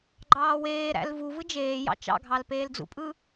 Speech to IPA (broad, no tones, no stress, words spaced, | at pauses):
ɡ͡ǃɑːweːɾæ̰l vuvɯ d͡ʒeːjɑ̰ t͡ʃɑ̰ɡʱɑl peːld͡zṵpʼɯ